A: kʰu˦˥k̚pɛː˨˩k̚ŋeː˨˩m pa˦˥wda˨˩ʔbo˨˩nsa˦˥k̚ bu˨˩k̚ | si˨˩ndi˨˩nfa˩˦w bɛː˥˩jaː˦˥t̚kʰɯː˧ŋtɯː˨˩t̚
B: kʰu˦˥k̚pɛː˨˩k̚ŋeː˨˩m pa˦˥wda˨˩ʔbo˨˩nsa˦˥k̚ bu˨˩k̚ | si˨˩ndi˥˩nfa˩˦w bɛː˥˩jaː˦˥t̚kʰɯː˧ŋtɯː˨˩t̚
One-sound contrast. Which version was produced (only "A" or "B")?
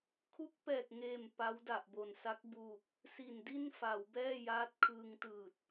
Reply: B